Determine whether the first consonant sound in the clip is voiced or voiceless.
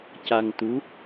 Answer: voiceless